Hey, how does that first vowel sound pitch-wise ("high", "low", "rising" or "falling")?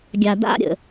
low